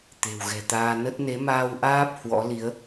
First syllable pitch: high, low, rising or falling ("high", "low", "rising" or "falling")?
low